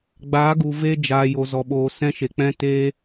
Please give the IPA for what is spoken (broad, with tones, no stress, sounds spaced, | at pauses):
ɡ͡b aː˨˦ ɡ u˨ v e˧ d͡ʒ aː˨ j o˨ z ɔ˨ ɓ oː˨ s ɛ̃˧ ʃ e˨ k͡p ɛ̃˧ t eː˧